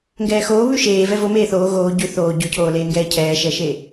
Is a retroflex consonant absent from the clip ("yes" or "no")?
yes